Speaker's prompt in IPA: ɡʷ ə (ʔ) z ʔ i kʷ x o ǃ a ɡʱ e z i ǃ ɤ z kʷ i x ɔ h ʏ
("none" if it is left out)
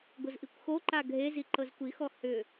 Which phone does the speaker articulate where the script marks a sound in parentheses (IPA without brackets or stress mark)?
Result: none